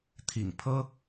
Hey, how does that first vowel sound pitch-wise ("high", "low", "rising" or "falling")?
low